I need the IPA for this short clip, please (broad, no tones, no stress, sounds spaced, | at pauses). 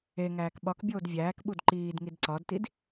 e ŋ æː k ɓ ɒ k bʲ oː d vʲ æː k ɓ u d ǃ iː d ŋ i d ǀ ɒ d t i d